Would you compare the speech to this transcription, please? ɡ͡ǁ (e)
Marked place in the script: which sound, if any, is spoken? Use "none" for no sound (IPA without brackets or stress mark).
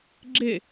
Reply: e